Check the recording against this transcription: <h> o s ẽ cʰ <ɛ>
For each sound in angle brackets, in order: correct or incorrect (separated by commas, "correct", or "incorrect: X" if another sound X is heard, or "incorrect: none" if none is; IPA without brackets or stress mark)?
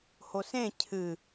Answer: correct, incorrect: ɨ